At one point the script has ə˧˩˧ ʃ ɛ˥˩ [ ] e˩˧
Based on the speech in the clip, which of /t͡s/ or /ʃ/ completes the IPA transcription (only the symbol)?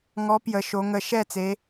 t͡s